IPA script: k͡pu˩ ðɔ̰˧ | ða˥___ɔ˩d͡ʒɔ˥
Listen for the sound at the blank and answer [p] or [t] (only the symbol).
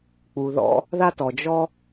t